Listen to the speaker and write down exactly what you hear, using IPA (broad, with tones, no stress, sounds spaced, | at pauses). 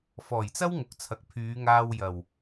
f ɔː˨˩ j t͡s ɐ˥ w ŋ ʊ˨ k̚ t͡sʰ ɐ˨ k̚ pʰ yː˨˧ ŋ aː˧ w j ɐ˨˩ w